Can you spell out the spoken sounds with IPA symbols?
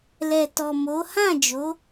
l ɛ˨ t ɔ˨ m o˨˦ h ã˦˨ d͡ʒ o˨˦

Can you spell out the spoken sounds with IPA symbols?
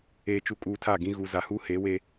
eː˨ t͡ʃ u˨ kʼ uː˨ tʰ a˦˨ ɡ ĩ˦ ɣ u˨ z a˨ h uː˦ h eː˨˦ w eː˦

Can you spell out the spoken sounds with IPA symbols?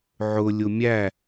ʕ ʊ lʲ ʊ mʲ æ

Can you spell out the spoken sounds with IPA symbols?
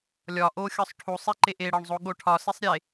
lʲ ɒ ʔ o xʲ ɒ sˤ ʈʰ u sˤ i ǃ e ʔ e ɽ ɒ ɳ zˤ o ɠ o ʈʰ ɒ s i sˤ ɾʲ e

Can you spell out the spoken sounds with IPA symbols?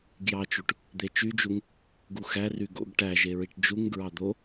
ɡ j ɑ t͡ʃ u ʈ | d̪ e t͡ʃ y d͡ʒ u ŋ | ɡ u x æ r y ɡ o̰ ɡ ʈ æ ʒ e ɹ i ʈ d͡ʒ u ŋ ɡ ɹ ɑ d̪ o

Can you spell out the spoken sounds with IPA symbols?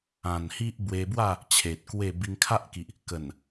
ã˨˩ n h i˦ ʔ b w e˧ b w a˥˧ | t͡ɕʰ e˨ t̚ k w e˥˧ b i˧ ŋ kʰ a˦ ʔ k i˨ ʔ | k ə˨˩ n

